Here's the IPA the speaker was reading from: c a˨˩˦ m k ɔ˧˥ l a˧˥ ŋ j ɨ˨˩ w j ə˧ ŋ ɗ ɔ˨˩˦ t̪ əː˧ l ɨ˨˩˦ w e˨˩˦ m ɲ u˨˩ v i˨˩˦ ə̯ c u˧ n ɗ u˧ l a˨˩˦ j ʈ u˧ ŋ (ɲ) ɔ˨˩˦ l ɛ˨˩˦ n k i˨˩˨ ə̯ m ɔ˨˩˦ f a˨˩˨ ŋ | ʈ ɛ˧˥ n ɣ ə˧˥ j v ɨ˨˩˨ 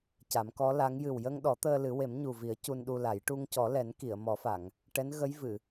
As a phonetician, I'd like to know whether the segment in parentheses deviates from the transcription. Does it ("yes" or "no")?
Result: yes